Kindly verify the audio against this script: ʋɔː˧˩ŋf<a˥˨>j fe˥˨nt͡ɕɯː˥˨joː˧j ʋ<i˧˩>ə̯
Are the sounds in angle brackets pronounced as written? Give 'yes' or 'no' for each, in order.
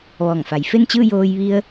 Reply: no, no

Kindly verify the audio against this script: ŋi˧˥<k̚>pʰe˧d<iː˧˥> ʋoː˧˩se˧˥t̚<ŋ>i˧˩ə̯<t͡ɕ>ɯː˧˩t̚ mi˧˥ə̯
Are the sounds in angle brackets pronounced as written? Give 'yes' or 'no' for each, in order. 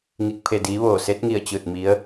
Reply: yes, yes, yes, yes

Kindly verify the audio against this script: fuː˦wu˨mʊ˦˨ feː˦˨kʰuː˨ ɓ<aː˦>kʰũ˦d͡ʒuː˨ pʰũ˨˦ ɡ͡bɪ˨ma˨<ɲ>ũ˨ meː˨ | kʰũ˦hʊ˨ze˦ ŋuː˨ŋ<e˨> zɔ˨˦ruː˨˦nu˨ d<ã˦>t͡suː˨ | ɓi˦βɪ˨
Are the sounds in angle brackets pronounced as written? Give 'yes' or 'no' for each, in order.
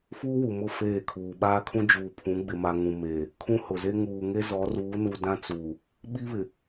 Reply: yes, no, no, yes

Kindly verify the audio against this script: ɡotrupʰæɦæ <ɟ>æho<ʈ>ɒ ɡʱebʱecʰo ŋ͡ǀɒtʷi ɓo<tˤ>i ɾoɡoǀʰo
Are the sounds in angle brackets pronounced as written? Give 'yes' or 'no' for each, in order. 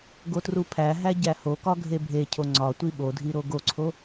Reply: yes, no, no

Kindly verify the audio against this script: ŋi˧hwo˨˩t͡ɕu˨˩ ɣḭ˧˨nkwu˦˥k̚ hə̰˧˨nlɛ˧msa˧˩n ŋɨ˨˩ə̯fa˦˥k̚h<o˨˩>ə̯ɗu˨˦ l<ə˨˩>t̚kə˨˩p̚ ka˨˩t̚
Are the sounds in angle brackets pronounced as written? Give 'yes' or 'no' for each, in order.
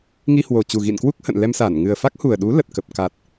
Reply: no, yes

